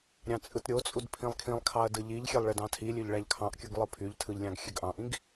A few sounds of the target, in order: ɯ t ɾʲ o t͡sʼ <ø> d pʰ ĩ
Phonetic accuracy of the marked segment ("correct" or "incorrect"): incorrect